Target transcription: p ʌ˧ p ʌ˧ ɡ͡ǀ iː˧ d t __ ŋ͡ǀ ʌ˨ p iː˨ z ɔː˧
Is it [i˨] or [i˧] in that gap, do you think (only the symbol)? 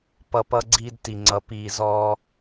i˨